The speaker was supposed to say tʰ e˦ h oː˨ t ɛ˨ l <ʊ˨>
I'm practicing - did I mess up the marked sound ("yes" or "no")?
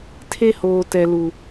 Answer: yes